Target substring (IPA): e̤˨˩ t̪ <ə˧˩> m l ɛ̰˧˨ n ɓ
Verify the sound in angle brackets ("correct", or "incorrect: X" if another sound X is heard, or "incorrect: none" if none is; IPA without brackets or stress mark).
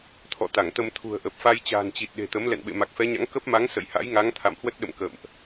incorrect: ə˨˦